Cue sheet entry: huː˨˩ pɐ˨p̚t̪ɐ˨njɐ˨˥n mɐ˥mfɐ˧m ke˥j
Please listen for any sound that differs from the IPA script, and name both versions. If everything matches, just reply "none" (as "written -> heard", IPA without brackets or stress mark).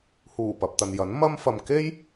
none